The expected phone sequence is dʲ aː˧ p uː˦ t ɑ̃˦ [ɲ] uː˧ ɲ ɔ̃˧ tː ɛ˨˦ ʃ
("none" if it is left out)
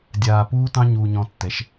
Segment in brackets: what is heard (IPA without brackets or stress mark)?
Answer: ɲ